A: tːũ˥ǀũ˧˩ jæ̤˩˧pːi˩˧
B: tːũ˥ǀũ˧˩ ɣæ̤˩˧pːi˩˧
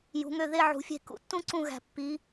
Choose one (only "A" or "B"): B